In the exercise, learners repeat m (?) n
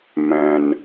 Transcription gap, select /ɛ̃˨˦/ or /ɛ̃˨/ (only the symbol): ɛ̃˨